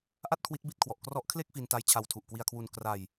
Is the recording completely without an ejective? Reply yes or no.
yes